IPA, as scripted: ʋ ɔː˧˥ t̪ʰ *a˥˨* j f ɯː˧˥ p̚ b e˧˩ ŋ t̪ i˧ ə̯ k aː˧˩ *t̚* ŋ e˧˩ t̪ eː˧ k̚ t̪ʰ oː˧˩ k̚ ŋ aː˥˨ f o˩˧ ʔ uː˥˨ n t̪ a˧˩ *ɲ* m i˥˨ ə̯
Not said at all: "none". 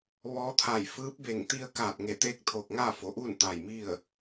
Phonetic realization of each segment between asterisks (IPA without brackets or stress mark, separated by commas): a˧˩, t̚, j